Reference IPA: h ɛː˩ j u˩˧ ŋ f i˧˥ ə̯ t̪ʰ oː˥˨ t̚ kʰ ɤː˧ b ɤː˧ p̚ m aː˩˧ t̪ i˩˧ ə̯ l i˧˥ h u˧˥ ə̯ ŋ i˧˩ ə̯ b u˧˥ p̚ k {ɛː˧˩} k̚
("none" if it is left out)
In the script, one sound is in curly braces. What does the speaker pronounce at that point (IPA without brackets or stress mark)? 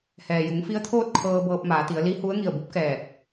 ɛː˧˩